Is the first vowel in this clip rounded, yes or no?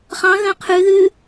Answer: no